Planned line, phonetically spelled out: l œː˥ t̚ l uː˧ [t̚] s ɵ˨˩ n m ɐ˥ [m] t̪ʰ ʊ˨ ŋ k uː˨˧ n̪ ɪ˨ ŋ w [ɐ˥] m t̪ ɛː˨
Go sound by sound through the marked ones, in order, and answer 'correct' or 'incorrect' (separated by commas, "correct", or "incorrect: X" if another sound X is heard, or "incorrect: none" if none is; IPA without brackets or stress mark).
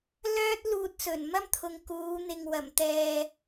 correct, correct, incorrect: ɐ˨˩